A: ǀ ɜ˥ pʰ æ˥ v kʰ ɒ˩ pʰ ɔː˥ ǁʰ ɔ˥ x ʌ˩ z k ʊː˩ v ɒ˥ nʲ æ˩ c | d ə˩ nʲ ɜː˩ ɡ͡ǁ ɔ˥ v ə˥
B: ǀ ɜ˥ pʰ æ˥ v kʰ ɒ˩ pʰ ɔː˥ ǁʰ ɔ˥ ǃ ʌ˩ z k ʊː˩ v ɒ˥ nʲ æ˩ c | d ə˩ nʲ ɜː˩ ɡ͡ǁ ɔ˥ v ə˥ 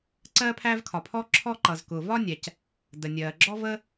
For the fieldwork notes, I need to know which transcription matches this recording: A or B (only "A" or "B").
B